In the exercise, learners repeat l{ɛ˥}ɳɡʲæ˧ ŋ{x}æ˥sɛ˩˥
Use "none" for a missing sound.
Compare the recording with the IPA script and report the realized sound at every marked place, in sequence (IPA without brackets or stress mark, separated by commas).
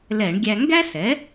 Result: ɛ˧˩˧, ɡ